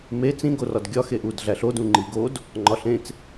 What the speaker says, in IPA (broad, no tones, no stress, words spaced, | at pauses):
me t͡sĩ ɡorɒdɡʲɒ xeʔud ɮæɬod ũŋ͡ǃiɡod | ŋ͡ǃɒɬẽt͡s